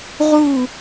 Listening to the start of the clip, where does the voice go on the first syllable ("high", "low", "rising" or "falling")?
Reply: falling